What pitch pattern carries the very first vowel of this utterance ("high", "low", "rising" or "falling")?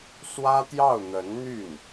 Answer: high